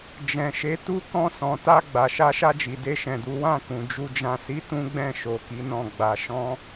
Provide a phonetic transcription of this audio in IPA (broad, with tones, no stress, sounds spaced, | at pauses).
d͡ʒ ɛ̃˨ ʃ e˨˦ t u˦˨ k ɔ̃˧ s ɔ̃˨ t a˧ ɡ͡b a˨ ʃ a˧ ʃ a˧ d͡ʒ i˨ d e˧ ʃ ɛ̃˨ d u˨˦ w ã˦˨ k ũ˨ d͡ʒ u˧ d͡ʒ ã˧ s i˦ t ũ˦ ɡ͡b ɛ̃˦˨ ʃ o˧ k i˦ n ɔ̃˦˨ ɡ͡b a˧ ʃ ɔ̃˦